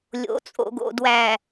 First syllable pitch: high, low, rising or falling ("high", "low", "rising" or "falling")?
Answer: rising